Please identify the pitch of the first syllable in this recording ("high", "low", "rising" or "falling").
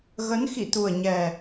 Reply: rising